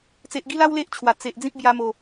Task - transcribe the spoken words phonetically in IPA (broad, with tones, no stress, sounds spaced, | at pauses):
t͡s e˨ ʔ ɡ i˦ l a˦ w l e˦ ʔ t͡ɕʰ w a˨˩ t͡s e˨ ʔ d͡z ĩ˦ p̚ b j a˧ m o˨˩